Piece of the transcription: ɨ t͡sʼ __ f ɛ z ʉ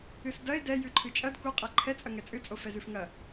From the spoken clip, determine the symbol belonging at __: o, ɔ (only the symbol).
o